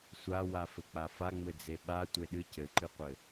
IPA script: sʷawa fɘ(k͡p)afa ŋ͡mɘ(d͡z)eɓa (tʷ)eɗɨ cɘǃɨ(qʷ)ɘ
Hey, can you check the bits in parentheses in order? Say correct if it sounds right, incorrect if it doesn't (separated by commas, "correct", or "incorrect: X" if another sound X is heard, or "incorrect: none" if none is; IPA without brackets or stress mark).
correct, correct, correct, correct